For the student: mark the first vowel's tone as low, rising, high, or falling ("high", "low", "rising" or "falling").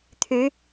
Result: rising